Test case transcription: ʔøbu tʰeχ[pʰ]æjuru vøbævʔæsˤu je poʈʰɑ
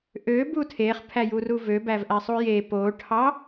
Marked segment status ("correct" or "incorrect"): correct